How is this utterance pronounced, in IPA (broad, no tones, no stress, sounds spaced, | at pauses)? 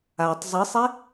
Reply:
a tˤ zˤ ɨ sˤ e